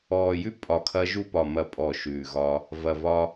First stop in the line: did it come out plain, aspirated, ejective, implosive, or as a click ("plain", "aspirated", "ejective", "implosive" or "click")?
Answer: ejective